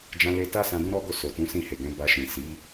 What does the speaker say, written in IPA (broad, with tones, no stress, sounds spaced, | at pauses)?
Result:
d͡ʒ ã˧ l e˧ t a˦ s ã˧ d ũ˦ ɾ ɔ˦ ɡ o˦˨ s o˨ t ũ˨˦ s ĩ˦˨ h e˨ ɡ ɛ̃˨˦ b a˧ ʃ ĩ˨ s i˨˦